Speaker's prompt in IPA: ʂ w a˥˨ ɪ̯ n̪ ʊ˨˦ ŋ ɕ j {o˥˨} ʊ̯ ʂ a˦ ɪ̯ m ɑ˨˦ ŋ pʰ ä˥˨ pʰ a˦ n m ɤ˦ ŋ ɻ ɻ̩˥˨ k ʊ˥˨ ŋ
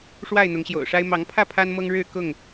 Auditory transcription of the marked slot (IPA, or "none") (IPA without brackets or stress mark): o̰˨˩